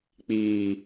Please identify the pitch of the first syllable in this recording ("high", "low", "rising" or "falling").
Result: low